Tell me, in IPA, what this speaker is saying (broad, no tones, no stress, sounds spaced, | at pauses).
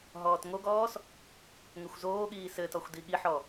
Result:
ɦ ɔː t ŋ o ɡ ɔː s | ŋ ɘ xʷ z oː ɠ iː s ɘ t ɔ xʷ d i ɠ i ħ ɔ